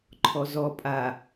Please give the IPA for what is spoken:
ǃʰ ɔ z ɔ pʼ a

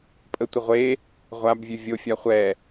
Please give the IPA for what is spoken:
pʼ ə tʷ ɪ ʁʷ e | ʁʷ a b vʲ ʉ vʲ o fʲ a χʷ ɛ

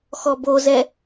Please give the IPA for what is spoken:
x ɔ b o z ɛ

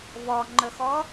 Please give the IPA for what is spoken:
v ɔ ŋ͡ǃ ɵ x ɔ

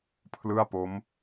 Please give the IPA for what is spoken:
pʰ l ɯ˥˩ a̯ p o˦˥ m

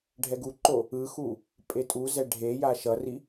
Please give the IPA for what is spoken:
ɖʱ ɛ ɡ u ǃ o | ɯ x u | pʼ e tʼ u z ɛ ɖʱ e j a ʃ ʌ r i

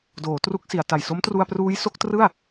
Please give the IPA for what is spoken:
d oː˩˦ t r u˦˥ k̚ s i˩˦ a̯ t a˨˩ j s o˦˥ m t r u˧ a̯ p r uː˦˥ j s o˦˥ k̚ t r ɯ˥˩ a̯

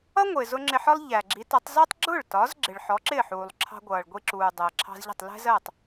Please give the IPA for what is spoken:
ʌ˥ ŋʷ ɪː˩ z ʊ˧ ŋ͡ǁ ɪ˧ ħ ɒ˥ lˠ ʎ æ˩ ɡ͡ǁ i˩˥ t ʌ˩˥ tˤ z ɒ˥ tˤ ɡ͡ǁ ʊ˥˩ ɭ t ɒ˩˥ z ɡ͡ǁ ɪ˩ ɭ ħ ɔ˩˥ ǁ ɪː˥˩ ħ uː˩ lˠ ǁʰ ɑ̤˧ ɡʷ ʌː˩ ɭ ɡʷ i˧ ǁ uː˩ dˤ əː˩ ǁʰ ɑ̤˧ z ʎ ə̤˥˩ tˤ l ɛ̤˥ z ɜː˥˩ tˤ

